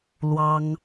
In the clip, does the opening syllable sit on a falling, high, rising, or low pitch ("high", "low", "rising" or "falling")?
high